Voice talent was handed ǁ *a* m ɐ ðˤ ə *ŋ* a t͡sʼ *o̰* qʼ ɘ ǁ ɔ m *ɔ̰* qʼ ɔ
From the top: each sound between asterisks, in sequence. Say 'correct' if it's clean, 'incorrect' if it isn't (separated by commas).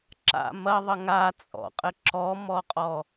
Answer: incorrect, correct, incorrect, incorrect